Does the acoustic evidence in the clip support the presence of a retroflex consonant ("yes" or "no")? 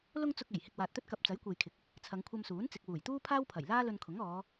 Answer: no